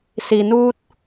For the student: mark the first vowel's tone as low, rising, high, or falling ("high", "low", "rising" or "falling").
low